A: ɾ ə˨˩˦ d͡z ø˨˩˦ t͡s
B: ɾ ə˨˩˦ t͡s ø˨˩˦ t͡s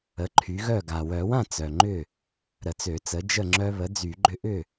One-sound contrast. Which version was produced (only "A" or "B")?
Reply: B